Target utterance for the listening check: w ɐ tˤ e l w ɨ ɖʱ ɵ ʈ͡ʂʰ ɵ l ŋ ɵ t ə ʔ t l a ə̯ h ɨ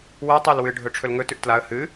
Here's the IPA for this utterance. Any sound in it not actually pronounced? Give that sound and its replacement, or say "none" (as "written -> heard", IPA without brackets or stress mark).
ə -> ʉ